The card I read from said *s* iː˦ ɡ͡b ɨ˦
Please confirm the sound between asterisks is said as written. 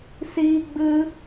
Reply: yes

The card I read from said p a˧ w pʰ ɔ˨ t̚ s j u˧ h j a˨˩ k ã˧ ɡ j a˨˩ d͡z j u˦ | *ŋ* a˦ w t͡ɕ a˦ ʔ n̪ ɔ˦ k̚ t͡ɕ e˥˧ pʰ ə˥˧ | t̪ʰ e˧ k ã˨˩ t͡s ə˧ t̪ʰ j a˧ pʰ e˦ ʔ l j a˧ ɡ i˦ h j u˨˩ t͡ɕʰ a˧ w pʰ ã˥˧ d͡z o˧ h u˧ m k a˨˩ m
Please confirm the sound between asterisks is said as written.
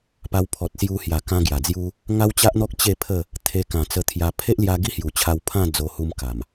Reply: yes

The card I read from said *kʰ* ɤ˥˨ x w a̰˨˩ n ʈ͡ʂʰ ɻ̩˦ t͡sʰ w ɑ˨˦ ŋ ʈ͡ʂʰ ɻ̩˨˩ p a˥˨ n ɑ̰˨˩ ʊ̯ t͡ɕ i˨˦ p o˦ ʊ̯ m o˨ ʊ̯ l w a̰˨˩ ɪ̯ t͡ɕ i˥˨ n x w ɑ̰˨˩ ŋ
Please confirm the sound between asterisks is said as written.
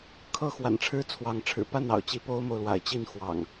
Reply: yes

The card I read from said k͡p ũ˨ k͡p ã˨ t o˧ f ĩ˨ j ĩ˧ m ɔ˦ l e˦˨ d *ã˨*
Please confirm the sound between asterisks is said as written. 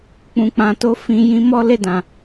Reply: yes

